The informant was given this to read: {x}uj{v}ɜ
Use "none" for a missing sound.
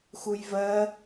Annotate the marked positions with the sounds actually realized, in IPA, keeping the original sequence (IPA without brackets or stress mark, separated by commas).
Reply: x, v